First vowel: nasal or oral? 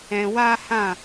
nasal